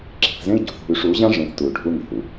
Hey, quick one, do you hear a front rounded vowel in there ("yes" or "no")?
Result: yes